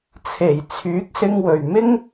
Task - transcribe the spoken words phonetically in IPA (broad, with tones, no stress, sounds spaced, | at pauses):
t͡sʰ e˨˩ j t͡sʰ yː˨˥ k̚ s ɪ˧ ŋ w ɵ˨ ɥ m ɪ˥ ŋ